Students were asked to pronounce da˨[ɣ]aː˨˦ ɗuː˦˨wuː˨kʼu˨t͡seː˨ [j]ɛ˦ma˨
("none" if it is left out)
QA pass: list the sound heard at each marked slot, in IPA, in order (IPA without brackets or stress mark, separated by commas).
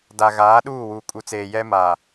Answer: ɣ, j